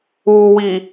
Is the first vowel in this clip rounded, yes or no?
yes